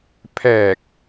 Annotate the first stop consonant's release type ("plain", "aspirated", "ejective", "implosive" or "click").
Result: aspirated